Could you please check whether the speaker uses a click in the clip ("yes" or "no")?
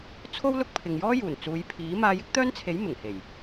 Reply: no